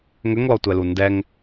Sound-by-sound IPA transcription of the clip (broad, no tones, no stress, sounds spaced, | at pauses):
ŋ ʏ ŋ l ɔ tʷ ɛ l u n d ɛ ŋ